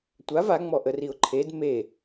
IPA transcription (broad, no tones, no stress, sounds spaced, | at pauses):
tʷ a v a ŋ͡m ɔ ʔ ə r i ʊ̯ ǃʰ e d m e